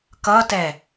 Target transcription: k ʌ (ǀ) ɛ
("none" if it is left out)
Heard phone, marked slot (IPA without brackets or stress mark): t